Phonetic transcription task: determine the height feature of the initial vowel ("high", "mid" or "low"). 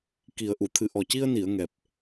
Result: high